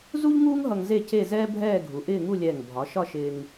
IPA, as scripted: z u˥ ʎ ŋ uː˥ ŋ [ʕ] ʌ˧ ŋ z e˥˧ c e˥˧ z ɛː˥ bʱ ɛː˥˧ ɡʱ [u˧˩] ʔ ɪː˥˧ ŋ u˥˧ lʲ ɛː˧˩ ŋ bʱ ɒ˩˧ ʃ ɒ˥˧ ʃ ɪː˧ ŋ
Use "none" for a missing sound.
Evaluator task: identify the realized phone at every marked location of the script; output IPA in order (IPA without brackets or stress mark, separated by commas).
ɦ, u˩˧